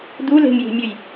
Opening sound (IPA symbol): d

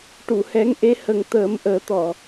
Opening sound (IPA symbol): ʈ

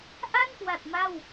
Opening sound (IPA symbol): ʔ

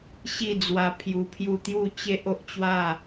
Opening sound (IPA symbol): ɕ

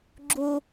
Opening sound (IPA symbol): ɡ͡ǁ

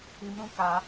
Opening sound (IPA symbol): i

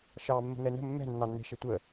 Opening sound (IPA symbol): ʃ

